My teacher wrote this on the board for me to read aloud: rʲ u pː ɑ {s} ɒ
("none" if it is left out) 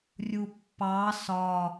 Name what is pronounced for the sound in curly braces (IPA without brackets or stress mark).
s